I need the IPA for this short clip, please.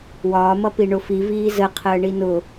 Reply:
w ɒː m ʌ p i ɳ ʊ f i v iː z ə qʰ əː ɳ i n ʊ

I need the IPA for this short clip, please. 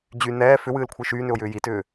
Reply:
d͡ʑ y n ɛː f ʏ w ɨː l kʷʰ ɨ ʃ yː n ʏ ʊ̯ j ʏː j i t ʏː

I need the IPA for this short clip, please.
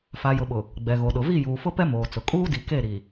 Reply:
f a˨ j ʊ˨ ɓ ʊ˨ | ɡ͡b ɛ˨ ɣ o˨ ɗ ʊ˨ v i˦˨ j uː˨ f ʊ˦ p ɛ˦ m oː˨ t͡s ʊ˨ kʼ uː˦ d i˨ k e˦˨ ɾ i˨

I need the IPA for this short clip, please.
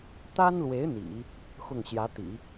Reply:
t̪ a˥ n l w e˧˥ ɪ̯ n̪ ḭ˨˩˦ | x ʊ˥˩ ŋ ɕ j ä˧˥ t̪ ḭ˨˩˦

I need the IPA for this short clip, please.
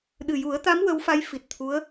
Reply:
ɗ ɨ˨˩ j u˨˩˦ ə̯ t̪ a˧˥ m w ə˧˥ w f a˧˥ j f i˨˩ t̚ t̪ʰ u˧˥ ə̯

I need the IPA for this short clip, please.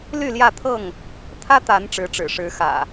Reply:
l y˥˨ l j ä˥˨ t̪ʰ ɤ˥˨ ŋ | t̪ʰ ä˦ t̪ a˨˦ n ʈ͡ʂ ɻ̩˨˦ ʈ͡ʂ ɻ̩˨˩ ʂ ɻ̩˨˦ x ä̰˨˩

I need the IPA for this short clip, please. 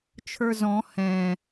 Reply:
t͡ʃʰ ə˞ z ɔ̃ h ɛ̃

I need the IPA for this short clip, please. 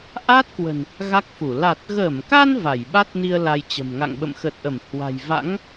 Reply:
ʔ a˦˥ t̚ k w ə̤˨˩ n | ɣ a˦˥ k̚ f u˧˩ l a˨˩ t̚ ɣ əː˧˩ m k a˧ n v a˧˩ j ɓ a˦˥ t̚ n i˧ ə̯ l a˧ j t͡ɕ ə̤˨˩ m ŋ a̰˧˨ ŋ ɓ ə̰˧˨ m x ə˨˩ t̚ ʔ ə˧˩ m h w a̤˨˩ j v a̰˧˥ ŋ

